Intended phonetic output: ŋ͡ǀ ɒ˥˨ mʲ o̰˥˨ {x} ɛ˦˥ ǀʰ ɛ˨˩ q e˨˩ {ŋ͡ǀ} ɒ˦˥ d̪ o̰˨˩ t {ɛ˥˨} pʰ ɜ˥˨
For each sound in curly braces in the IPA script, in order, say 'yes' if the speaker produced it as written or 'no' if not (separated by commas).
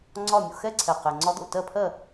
yes, yes, no